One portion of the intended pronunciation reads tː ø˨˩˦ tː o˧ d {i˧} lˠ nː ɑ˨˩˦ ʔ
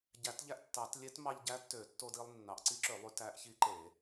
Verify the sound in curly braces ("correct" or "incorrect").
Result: correct